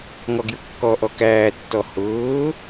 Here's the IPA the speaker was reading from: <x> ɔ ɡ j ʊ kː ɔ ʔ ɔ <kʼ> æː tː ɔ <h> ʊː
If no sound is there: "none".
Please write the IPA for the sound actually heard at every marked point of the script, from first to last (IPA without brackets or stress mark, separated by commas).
ŋ, k, h